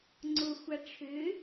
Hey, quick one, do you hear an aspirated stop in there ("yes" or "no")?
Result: yes